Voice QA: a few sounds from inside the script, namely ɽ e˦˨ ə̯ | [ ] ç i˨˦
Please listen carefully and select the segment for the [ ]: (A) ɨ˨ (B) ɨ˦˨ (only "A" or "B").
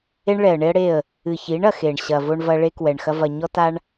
A